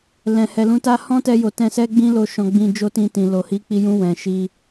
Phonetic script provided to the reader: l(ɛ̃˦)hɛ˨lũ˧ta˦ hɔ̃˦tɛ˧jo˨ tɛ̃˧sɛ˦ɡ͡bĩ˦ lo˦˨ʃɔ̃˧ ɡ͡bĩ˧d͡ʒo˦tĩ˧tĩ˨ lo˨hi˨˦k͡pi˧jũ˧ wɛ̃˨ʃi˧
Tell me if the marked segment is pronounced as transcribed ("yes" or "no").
no